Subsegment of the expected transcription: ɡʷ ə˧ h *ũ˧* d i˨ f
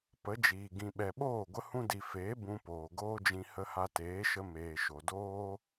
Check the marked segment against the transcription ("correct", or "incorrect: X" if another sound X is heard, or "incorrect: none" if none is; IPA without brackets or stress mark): correct